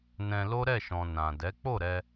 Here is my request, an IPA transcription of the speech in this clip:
n ɛ̃˧ l o˦ ɾ ɛ˦˨ ʃ ɔ̃˨ n ã˨ d ɛ˨˦ k͡p o˦˨ ɾ ɛ˧

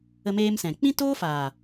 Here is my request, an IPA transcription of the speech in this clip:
ə˧ m eː˧ m s ɛ̃˨ k͡p ĩ˦ t oː˦ f aː˨

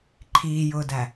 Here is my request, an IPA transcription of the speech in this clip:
ǃʰ iː j ʊː d æ

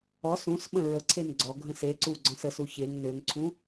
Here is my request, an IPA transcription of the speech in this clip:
ɔ s ũ s ɓ ə̃ ɹ ə ǀʰ e n ɡ͡ǀ ɔ ɡʱ ə̃ s e ǀ u ɡ͡ǀ ɔ̃ s ə s u ç e ŋ n ø ŋ ǀʰ ũ

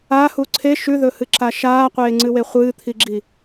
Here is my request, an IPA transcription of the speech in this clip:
a h u ǀʰ e ʃ ʉ ð ɵ h ɨ ǁ a ʃ aː qʷ eː ŋ͡ǀ ɨ w e χʷ ɨː t̪ʰ i ɡ͡ǁ i

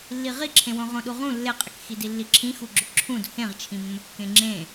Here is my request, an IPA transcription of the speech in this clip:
lː i ʁ i ǁʰ ẽ w õ ʁ õ ɗ u ʁ ũ lː e qʼ ɪ k x i d i lː i ǁʰ ĩ x u ɡ͡ǁ ʊ ǁʰ ũ d h ẽ ʁ t͡ʃʰ ĩ mː ʊ kː ẽ ŋ͡ǁ ẽ

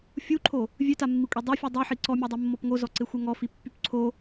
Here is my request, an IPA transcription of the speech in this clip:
fʲ u ǃʰ o | vʲ ø t a mː i kʷʼ e dˤ o fʲ u dˤ u ħ i ǀ ɔ mʲ o dˤ e mː ɔ p ŋ o z ɔ ǀ e xʷ ɛ ŋ ɔ f i pː y p ǀʰ o

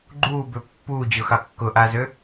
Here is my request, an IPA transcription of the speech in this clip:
ɡ͡ǃ uː b ø pː uː d͡ʑ ʊ x ɑ kː ʊ ʔ a z ø

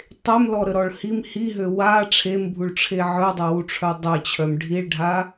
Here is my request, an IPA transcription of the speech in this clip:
tˤ e m l ɔ ɾ ə ɾ ɔ ɭ h i m h i ɦ ø w a ʈ͡ʂʰ e m bʱ u ɭ ʈ͡ʂʰ e ʕ œ dˤ o w u ʈ͡ʂʰ œ dˤ e t͡ɕʰ œ m ɖʱ i ɭ ɖʱ a

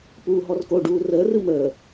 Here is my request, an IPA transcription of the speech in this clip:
p uː ɦ ɔ r k o ɖ uː r əː r ɯ m əː

